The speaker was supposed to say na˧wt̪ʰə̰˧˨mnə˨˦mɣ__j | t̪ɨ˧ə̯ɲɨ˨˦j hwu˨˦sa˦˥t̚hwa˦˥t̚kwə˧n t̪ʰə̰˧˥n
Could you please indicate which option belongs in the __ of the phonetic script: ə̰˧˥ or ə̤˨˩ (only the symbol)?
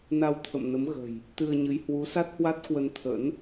ə̤˨˩